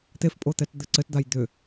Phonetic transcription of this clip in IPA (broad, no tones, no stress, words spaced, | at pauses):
t̪efpʼot̪ɛt d̪ɘǀɘtd̪aj d̪ʏ